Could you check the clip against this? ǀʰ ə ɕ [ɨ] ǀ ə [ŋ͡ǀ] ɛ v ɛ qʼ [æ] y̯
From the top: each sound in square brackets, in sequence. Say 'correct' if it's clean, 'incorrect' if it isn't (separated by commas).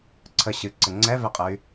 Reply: correct, correct, incorrect